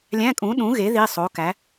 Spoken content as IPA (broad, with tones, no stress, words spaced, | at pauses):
lʲæ̃˧˥˧kʼũ˨˥ɗũ˨˥ɣe˨˥ ði˧˥˧sˤo˨˥kæ˨˥